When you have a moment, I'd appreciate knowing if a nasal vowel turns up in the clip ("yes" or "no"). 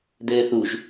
no